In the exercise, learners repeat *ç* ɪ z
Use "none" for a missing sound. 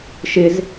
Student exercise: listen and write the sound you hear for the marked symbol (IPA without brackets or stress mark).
ʃ